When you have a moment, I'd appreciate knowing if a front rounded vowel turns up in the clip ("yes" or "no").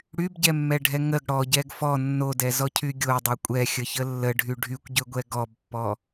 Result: yes